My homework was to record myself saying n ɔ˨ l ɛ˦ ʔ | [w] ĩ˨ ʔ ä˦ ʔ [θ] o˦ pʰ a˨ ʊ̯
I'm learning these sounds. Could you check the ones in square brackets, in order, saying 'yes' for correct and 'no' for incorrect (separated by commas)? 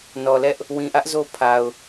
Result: yes, no